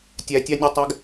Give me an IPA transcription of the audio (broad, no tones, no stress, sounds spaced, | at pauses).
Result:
tʲ æ tʲ ɑ nʲ ɔ tˤ æ ɡ